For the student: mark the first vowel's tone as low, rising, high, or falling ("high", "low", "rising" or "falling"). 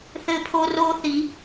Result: high